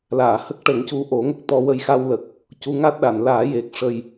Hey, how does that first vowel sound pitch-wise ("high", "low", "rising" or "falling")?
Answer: low